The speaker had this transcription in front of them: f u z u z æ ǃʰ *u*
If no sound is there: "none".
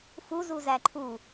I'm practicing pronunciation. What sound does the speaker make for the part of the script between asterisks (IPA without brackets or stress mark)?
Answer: u